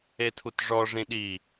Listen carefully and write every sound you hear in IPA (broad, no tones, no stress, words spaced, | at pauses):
etʰutʐɔ ʐĩɗi